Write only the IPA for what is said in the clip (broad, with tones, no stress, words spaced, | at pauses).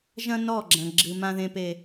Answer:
ʒɐ̃˦ nɔ˦˨ɡ͡ǁɐ̃˨ ɡ͡ǁɨ˨ mã˨ðẽ˨pe˨